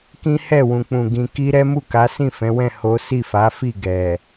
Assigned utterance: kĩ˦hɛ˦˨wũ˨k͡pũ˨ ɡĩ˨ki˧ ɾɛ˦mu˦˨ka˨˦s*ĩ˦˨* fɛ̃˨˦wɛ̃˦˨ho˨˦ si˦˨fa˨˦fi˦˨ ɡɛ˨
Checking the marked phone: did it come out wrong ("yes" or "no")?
no